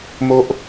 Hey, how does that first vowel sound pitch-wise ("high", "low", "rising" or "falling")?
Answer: high